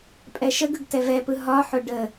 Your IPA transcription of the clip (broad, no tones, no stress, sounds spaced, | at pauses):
pʼ ɛ ʃ ə ɡ ɯ ɡ t ɛ v ɛ p ɯ ɦ ɒ ħ ʊ ɖ ə